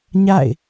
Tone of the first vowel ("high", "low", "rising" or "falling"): falling